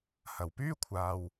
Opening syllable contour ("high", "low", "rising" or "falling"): low